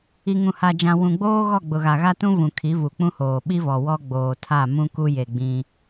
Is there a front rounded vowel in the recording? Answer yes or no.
no